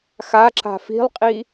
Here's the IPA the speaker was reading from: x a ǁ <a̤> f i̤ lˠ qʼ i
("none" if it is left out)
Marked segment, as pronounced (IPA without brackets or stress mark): a̤